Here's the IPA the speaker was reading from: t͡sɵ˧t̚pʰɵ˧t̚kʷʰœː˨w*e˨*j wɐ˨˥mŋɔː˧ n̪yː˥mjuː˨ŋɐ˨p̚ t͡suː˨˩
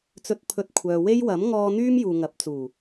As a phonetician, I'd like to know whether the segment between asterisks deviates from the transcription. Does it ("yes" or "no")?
yes